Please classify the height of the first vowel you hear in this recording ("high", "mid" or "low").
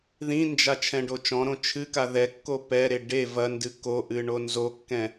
high